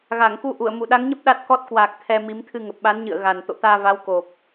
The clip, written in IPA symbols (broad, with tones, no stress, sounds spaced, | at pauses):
ɣ a˧˩ ŋ k u˨˦ ʔ u˧˩ ə̯ m u˧˩ ɗ a˨˦ ŋ ɲ ə˦˥ p̚ ɗ a˦˥ t̚ k ɔ˦˥ t̚ k w aː˨˩ k̚ t̪ʰ ɛ˧ m i˨˦ m t̪ʰ ɨ˧ ŋ ə˨˩ p̚ ɓ a˨˦ n ɲ ɨ̰˧˨ ə̯ ɣ a˨˩ n t̪ o̰˧˨ t̪ aː˧ v a˨˦ w k o˨˩ p̚